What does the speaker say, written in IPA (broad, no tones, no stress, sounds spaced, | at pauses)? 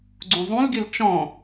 ɡ͡ǀ ũ zˤ ũ l ɡ i l t͡ʃ ɔ̃